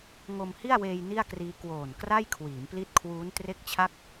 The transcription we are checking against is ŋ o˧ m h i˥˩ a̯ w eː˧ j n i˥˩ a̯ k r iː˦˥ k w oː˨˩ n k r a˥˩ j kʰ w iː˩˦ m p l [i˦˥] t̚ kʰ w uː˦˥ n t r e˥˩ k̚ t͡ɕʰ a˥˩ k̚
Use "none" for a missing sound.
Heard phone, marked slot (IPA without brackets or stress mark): i˦˥